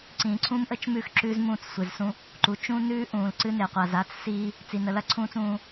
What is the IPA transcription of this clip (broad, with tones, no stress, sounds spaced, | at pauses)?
ǀ ĩː˨ ǀʰ ũ˦ m ʔ ə˦ t͡ʃ m ʉː˦ x ǁ ʉː˦ z m ũː˦˨ t͡s sʷ e˨ z s ũ˦ | ǃ u˨ t͡ʃ ũ˦ n ʉː˦ ʔ ũː˨ l ǀ ɨ˦ n e˨ qʷ a˨ z a˦ t͡s s iː˦ | t͡s i˨ n ə˨ l ɐ˦ ǀʰ ũː˦ t͡s ũː˦